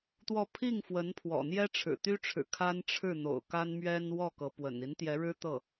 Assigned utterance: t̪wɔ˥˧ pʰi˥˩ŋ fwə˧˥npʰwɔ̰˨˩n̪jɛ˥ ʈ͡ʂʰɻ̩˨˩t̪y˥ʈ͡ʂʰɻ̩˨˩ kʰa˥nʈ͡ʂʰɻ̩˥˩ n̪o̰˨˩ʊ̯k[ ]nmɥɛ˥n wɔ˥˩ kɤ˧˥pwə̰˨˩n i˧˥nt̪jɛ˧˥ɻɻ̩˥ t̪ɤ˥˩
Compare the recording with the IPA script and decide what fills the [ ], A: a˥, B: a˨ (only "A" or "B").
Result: A